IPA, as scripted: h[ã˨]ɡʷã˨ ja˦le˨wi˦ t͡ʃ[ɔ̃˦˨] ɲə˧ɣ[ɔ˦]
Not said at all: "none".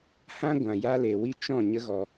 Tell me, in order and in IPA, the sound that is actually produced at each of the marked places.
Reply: ã˦, ɔ̃˦˨, ɔ˨

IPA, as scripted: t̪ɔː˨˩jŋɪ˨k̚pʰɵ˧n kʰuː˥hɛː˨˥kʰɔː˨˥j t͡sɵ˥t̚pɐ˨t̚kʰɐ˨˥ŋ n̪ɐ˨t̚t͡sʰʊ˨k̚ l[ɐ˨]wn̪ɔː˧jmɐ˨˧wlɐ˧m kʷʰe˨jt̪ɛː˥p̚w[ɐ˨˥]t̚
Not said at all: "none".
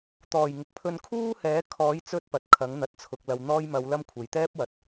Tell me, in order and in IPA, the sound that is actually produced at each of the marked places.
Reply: ɐ˨, ɐ˨

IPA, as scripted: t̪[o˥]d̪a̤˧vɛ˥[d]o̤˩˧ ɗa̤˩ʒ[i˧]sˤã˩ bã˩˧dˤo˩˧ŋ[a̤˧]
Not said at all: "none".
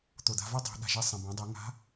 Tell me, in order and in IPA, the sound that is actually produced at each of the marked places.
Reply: o˩, dˤ, i˧, a̤˧˥

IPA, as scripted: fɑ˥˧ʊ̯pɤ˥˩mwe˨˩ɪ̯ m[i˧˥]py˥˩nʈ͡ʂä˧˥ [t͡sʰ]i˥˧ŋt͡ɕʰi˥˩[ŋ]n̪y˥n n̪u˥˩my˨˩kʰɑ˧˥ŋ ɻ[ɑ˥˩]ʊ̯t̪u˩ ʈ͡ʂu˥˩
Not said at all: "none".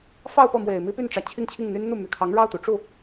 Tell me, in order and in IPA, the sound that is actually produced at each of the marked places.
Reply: i˥, t͡ɕʰ, ŋ, ɑ˥˩

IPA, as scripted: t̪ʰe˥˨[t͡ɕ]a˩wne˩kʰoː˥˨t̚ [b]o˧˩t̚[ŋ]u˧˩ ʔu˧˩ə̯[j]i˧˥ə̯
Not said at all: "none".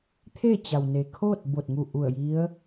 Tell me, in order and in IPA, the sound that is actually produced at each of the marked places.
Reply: t͡ɕ, b, ŋ, j

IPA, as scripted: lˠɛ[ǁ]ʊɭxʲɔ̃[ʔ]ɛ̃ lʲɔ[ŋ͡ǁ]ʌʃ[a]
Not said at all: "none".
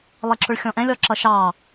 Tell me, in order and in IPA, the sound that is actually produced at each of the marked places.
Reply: ǁ, ʔ, ǁ, ɑ

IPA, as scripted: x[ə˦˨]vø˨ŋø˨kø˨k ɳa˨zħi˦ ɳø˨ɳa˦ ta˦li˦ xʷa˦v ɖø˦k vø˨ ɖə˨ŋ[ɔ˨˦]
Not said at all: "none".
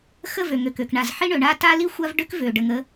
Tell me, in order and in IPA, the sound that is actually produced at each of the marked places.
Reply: ə˦˨, ə˨˦

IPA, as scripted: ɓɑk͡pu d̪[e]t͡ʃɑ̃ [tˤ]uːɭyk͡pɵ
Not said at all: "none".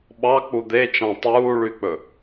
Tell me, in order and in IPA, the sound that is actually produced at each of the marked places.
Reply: e, tˤ

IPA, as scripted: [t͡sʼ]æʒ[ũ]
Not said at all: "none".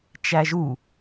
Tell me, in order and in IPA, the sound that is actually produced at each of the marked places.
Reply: t͡ʃ, u

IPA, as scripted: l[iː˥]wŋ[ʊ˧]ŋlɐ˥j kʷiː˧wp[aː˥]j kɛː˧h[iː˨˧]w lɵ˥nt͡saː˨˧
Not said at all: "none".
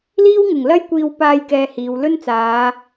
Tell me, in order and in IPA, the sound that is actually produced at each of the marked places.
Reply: iː˥, ʊ˨˩, aː˧, iː˨˧

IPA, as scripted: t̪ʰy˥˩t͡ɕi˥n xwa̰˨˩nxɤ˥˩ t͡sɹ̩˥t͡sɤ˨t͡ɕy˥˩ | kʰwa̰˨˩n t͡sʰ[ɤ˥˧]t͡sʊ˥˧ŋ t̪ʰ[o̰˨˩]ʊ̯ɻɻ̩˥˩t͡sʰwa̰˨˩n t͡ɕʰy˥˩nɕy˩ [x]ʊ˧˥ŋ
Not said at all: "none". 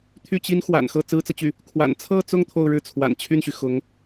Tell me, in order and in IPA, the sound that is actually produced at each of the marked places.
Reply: ɤ˥˧, o˥˧, x

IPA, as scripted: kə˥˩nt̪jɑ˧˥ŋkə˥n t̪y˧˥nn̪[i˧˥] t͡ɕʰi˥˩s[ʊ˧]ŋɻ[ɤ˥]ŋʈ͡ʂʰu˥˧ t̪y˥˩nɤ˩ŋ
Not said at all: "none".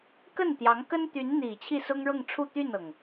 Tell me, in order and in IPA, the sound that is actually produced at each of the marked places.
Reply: i˨˩, ʊ˥, ɤ˥˧

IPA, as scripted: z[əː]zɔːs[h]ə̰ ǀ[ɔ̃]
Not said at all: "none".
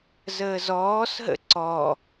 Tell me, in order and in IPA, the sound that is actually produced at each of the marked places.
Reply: əː, ɦ, ɔ

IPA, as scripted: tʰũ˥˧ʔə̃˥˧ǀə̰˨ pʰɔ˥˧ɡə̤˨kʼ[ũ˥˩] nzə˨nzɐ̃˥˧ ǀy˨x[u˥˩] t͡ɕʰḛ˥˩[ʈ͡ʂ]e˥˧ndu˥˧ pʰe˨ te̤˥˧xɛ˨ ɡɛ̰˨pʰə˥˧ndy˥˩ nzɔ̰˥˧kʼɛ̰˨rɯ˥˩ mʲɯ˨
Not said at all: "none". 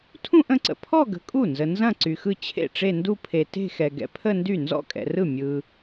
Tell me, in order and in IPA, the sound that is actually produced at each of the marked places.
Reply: u˥˩, ɯ˥˩, ʈ͡ʂ

